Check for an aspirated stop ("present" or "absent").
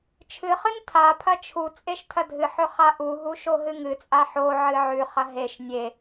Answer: present